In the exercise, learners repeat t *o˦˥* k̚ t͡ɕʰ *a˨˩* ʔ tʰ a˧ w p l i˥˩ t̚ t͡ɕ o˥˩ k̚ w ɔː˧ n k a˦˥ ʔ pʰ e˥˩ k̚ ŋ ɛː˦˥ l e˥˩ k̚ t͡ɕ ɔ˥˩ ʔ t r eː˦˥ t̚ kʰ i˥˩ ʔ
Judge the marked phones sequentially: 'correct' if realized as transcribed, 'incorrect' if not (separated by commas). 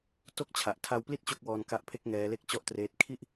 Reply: incorrect, correct